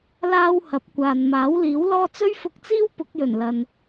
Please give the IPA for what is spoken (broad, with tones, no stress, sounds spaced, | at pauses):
l aː˥ w h ɐ˨˥ p̚ kʷ aː˨ n m aː˨˥ w l iː˨˥ w l ɔː˥ t͡s ɵ˥ ɥ f ʊ˧ k̚ t͡s iː˥ w p ʊ˨˥ k̚ j ɵ˨˩ n l ɐ˨ n